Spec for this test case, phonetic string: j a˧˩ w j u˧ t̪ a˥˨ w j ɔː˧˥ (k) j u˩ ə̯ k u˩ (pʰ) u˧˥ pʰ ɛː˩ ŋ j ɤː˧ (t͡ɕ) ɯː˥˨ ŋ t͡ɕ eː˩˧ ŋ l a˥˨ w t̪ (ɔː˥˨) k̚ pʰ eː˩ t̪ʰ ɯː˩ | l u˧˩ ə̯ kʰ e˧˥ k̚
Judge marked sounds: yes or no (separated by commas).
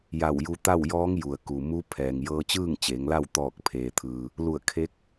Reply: no, no, yes, no